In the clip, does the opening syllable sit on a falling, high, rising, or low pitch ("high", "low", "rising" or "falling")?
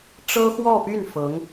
high